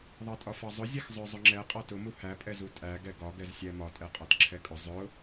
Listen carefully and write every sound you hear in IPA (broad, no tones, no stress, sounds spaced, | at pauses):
ðˤ ɑ tʼ ɒ f ɑ zˤ ʊ zʲ ɛ x zˤ ʊ zˤ ʊ ŋ͡ǁ ɛ qʼ ɑ t ʊ m u h æ pʼ ɛ z u tʼ æ ɡ ɛ ɡ ɒ ɡ ɛ z sʲ æ m ɒ tʼ ɛ qʼ ɒ t ǁʰ ɛ kʼ ʊ zˤ ʊ